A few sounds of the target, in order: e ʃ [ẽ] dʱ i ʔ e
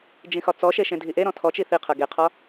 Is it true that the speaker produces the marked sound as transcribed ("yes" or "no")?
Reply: yes